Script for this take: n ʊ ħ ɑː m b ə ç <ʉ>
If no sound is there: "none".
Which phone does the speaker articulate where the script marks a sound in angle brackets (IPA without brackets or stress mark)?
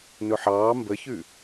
ʉ